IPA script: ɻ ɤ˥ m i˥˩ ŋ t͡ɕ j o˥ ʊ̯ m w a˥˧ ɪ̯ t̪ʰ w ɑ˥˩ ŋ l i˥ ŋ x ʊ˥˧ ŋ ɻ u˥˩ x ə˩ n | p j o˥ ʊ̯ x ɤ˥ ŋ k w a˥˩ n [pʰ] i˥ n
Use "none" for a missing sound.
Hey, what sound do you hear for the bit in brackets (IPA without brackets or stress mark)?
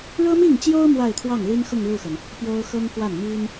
m